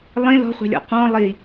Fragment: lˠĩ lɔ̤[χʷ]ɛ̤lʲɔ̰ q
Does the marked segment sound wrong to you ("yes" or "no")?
no